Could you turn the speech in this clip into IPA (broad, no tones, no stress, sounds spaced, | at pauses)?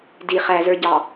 d i χ æ z ə˞ ɟ ɑ